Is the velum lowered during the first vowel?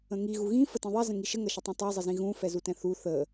yes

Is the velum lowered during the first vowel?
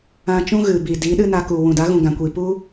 yes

